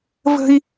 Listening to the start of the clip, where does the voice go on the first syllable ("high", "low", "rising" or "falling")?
high